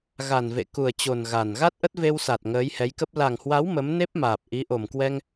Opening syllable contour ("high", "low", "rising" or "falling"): low